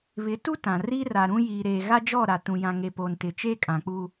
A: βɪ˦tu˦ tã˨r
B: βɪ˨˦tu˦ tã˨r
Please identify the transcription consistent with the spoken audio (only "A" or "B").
B